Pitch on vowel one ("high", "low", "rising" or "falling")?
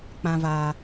low